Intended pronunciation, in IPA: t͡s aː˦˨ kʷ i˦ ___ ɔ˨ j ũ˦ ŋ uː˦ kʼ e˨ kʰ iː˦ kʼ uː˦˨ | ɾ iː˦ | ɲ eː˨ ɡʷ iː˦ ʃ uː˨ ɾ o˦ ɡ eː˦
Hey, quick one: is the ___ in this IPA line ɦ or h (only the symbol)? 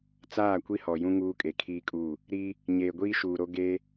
h